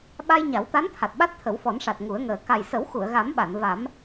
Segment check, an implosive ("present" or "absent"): present